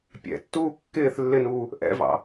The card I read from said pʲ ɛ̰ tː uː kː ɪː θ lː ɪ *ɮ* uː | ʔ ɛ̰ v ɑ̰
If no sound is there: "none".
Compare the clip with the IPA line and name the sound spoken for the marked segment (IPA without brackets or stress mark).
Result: n